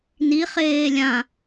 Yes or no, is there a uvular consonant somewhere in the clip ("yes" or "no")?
yes